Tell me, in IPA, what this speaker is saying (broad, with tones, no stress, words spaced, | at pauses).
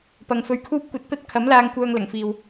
pɐ˨˧ŋfɵ˧ɥkʰuː˥p̚ kʷɐ˧t̚t̪ɐ˥t̚ kʰɐ˨˥mlaː˧ŋ kʷœː˧ŋlɐ˨˩ŋfiː˨w